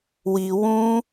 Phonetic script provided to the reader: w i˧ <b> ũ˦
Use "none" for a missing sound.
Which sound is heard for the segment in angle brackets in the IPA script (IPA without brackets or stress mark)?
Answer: w